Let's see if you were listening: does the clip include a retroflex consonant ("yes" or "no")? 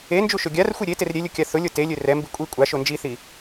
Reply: no